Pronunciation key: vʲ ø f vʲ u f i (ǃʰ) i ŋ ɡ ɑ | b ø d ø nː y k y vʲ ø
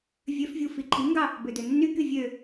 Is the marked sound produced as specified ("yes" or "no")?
yes